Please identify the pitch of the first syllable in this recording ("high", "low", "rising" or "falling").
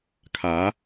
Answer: rising